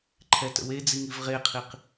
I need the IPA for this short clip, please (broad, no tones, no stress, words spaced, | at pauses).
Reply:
ǃʰɛtə̰we d͡ziŋivʁeqʰiq